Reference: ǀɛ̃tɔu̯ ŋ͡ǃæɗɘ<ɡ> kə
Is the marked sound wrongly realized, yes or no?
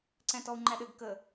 no